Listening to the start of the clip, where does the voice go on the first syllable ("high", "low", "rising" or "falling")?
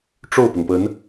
falling